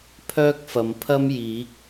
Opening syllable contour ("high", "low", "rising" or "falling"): high